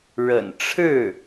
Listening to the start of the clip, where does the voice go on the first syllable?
low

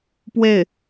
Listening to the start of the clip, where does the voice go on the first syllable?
falling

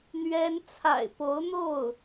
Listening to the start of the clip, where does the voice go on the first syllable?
high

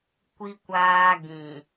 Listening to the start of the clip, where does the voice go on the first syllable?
high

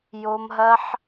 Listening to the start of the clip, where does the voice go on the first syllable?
high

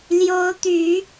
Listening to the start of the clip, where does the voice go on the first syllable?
rising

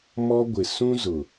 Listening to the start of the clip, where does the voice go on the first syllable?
high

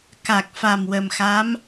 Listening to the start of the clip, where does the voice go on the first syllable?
low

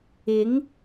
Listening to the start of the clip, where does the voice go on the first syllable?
rising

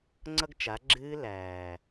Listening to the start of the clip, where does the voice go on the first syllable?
high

